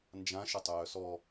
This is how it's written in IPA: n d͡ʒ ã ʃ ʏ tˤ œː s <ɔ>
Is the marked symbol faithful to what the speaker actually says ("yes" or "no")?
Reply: yes